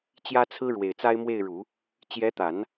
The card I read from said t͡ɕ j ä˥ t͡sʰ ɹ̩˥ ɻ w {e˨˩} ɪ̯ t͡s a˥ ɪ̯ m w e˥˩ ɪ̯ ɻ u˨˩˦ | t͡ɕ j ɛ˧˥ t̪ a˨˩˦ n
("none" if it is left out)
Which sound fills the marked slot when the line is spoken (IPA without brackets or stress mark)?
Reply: e˨˩